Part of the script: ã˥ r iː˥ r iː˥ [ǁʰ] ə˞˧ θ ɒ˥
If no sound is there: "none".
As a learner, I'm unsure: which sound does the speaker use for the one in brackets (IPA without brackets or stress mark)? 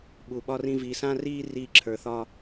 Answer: ǁʰ